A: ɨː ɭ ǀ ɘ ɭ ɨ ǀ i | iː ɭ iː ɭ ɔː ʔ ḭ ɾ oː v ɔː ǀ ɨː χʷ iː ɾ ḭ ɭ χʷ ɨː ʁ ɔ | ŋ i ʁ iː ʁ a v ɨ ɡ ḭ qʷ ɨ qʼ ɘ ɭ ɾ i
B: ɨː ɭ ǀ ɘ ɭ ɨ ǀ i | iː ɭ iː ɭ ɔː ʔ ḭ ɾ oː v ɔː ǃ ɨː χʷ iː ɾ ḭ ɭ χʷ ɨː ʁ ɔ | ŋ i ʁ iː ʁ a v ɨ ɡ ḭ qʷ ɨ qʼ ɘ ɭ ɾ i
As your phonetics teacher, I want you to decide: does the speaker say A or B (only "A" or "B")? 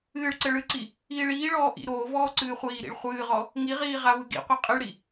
A